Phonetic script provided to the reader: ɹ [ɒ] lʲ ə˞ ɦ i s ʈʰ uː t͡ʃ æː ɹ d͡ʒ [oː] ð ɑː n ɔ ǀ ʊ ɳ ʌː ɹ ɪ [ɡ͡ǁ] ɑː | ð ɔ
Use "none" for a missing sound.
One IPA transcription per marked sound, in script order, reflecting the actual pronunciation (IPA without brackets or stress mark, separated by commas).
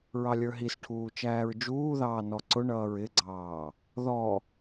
ɑ, uː, ɡ͡ǀ